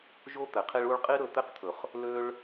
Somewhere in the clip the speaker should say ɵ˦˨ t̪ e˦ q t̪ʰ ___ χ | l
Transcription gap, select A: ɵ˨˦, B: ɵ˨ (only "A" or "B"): B